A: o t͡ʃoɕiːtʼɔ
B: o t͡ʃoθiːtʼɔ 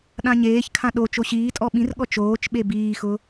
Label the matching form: A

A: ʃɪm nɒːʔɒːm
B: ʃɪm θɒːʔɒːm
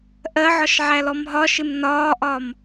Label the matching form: A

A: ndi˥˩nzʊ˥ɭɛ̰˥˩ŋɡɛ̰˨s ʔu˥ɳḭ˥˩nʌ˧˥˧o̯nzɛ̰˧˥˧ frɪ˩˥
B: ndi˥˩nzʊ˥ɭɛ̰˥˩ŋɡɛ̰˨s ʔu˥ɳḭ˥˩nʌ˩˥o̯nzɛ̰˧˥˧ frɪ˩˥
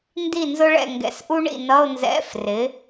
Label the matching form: A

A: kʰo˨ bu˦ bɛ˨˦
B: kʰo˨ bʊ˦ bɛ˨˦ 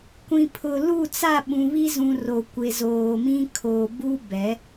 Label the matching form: A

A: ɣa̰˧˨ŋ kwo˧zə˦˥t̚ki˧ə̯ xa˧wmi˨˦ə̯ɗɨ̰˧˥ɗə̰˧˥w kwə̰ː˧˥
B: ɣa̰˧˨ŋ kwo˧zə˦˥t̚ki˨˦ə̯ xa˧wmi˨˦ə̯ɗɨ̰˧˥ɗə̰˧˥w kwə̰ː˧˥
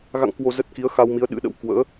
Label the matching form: B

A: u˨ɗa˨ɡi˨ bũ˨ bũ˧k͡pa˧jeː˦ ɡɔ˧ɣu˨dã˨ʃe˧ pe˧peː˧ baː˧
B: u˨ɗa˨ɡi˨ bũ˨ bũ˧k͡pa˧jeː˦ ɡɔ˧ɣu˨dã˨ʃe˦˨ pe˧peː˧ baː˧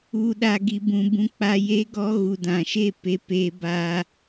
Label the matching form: B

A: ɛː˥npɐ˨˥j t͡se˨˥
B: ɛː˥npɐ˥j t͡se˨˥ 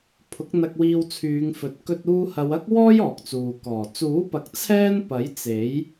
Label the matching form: A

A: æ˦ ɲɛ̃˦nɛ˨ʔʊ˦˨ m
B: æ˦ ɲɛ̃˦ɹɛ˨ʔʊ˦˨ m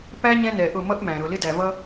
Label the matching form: A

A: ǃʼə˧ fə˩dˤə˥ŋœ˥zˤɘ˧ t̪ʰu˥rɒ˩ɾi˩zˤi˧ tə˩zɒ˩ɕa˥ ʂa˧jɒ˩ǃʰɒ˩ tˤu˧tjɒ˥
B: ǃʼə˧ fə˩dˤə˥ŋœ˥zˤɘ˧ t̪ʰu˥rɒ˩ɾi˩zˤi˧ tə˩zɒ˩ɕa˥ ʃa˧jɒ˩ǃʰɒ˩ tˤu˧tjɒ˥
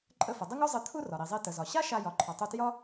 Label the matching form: B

